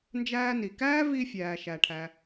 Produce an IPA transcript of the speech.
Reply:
n d͡ʒ æː˧ n i˩ k æː˥ v i˧ fʲ æː˩ ʃ æ˩ ʈʰ æ˩

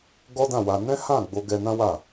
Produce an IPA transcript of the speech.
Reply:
ɡ ɔ˦ d ã˦˨ w a˧ n ɛ̃˦ h ã˦˨ ɡ͡b o˧ ɡ ɛ˧ n ã˦ w a˦˨

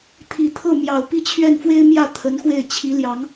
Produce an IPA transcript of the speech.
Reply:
t̪ʰ i˨˩ t̪ʰ ɤ˥˩ m j ɑ˨˩ ʊ̯ p i˥˧ t͡ɕʰ ɥ ɛ˥˩ n f w e˥ ɪ̯ m j ä˥˩ t̪ʰ ə˧˥ n x w e˥˩ ɪ̯ t͡ɕʰ i˧˥ l j ɑ˧˥ ŋ

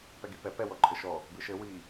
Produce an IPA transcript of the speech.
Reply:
p ɛ ɡ i p ɛ p ɛ w ɔ ǃʼ ɘ ʃ ɔ | b ɨ ʃ ɘ w i

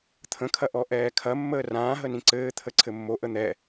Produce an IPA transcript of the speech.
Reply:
t̪ʰ ə̃ kʰ ɐ ʔ ɔ ʔ ɛː kʰ ɐ mː əː r ãː ɦ ə n ĩ ǀ ɘː t̪ʰ ə ǀʰ ɘ mː o ʔ ə n̪ ɛ

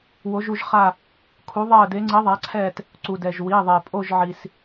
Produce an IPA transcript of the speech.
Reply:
w o˨˦ ʒ u˦˨ ʒ χ a˦˨ | kʰ u˨˦ ðˤ ɛ˦˨ ə̯ d e˨˦ ŋ͡ǀ i˨˦ ðˤ a˨˦ ǀʰ ɛ˦˨ t | ǀ u˩ d ɛ˩ ʒ w i˩˧˩ ðˤ e˩ pʼ o˦˨ ʒ ʕ i˩ s

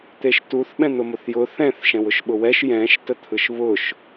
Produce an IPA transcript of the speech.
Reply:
t̪ e ʃ t u θ ɓ ɛ̃ n̪ ʊ m ʊ θ j ʊ θ ɛ̃ θ ʃ ɛ̃ w ʊ ʃ ɓ ʊ w ɛ ʃ j ɛ̃ ʃ t ə t̪ʰ ɯ ʃ β ʊ ʃ

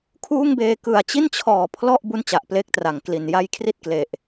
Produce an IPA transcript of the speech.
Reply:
kʰ uː˥˩ ŋ b eː˧ k ɯ˨˩ a̯ t͡ɕ i˥˩ n t͡ɕʰ ɔː˨˩ pʰ l ɔ˥˩ ʔ b u˥˩ n t͡ɕ a˨˩ ʔ p l e˥˩ k̚ t r a˨˩ ŋ k l i˨˩ n j a˧ j kʰ r i˥˩ t̚ k l e˨˩ ʔ

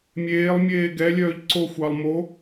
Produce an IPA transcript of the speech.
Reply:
mʲ eː lˠ mʲ eː ɡ ɛ lʲ œː ʎ ǀ o xʷ ɑ lˠ m o

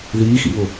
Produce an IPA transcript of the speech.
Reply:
ð iː x ḭ β ʊ

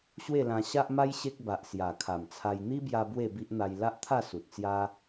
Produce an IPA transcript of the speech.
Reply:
ɕ w e˥˧ l ã˧ ɕ a˦ ʔ m a˦ j ɕ e˦ k̚ b a˨ ʔ s j a˨˩ kʰ a˨˩ m t͡sʰ a˧ j n̪ i˦ b j a˧ b w e˥˧ b i˦ ʔ n̪ a˧ j l a˦ ʔ t̪ʰ a˥˧ s u˨ t̚ t͡s j a˦

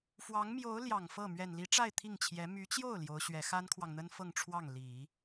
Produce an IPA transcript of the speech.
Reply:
f w ɑ˧˥ ŋ m j o˧˥ ʊ̯ l j ɑ˨˩ ŋ f ɤ˥˩ m ɥ ɛ˨˩ n l i˧˥ ʈ͡ʂ a˥˧ ɪ̯ t̪ʰ i˥˩ ŋ t͡ɕʰ j ɛ˧˥ m y˧˥ t͡ɕ j o˥˩ ʊ̯ l j o˧˥ ʊ̯ ɕ ɥ ɛ˧˥ x a˥ n kʰ w ɑ˨ ŋ n̪ ə˥ n f ɤ˥˧ ŋ ʈ͡ʂʰ w ɑ˥˩ ŋ l i˨˩˦

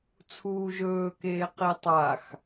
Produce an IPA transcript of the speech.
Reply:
t͡sʰ uː ʒ ɵː k eː q i tˤ a x

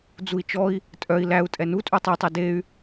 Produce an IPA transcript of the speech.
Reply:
d͡z u i̯ t͡ʃ ɔ i̯ | tʼ œ i̯ l æ u̯ tʼ ɛ n u tʼ u tˤ o tˤ e d e y̯

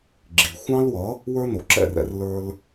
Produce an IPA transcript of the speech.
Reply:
ɡ͡ǁ i˩ xʷ ɑ̃˥ l w ʌ˩˥ | w ə˞˥ n o˩ ǁ ɛ̰˥˩ r ɛ̰˩˥ r l ə˞˥ l

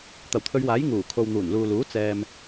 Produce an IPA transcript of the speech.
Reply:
t̪ ɐ˨˩ w t̪ʰ ɵ˨˧ ɥ w aː˨˥ j ŋ uː˨˩ kʰ o˨ w n̪ uː˨˩ n l uː˨ l uː˨˥ t͡s ɛː˨ m

